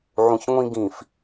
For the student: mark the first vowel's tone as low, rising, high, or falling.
low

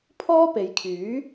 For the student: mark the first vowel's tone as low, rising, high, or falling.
high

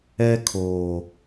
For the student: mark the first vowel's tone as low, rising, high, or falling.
high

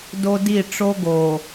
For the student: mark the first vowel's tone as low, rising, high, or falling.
high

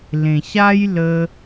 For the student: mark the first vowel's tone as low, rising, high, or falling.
low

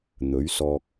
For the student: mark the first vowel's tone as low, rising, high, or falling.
rising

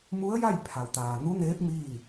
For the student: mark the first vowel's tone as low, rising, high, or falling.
rising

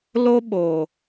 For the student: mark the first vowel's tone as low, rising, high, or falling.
high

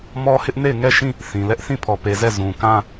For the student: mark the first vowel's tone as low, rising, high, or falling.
high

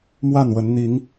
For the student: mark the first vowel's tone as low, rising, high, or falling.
falling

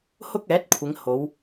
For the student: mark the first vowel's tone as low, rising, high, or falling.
high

